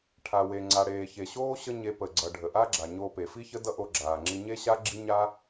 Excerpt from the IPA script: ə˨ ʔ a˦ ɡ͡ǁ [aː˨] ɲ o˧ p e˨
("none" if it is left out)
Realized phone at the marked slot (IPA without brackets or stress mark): a˨